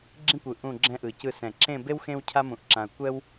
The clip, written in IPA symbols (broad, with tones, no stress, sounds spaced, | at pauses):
ɡ͡ǁ ĩ˥ kʷ ɯ˧˩ ʔ ũ˥˧ ɡ͡ǁ ɛ̃˥ ʔ ɯ˧˩ c ɯ˥˧ s ɛ̃˧˩ ǁ ẽ˥˧ b e˥ w x ẽ˥ w cʰ a˥ m ũ˧ ʔ ǁ ã˧ ɐ̯ kʷ ɛ˥ w